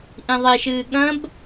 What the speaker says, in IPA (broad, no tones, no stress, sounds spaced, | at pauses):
ʔ ĩ ðˤ i ʃ ɨː ɠ ɐ̃ b